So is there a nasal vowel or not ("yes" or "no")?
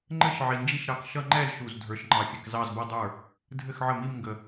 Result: no